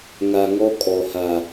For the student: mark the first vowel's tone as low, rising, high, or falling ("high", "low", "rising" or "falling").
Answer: low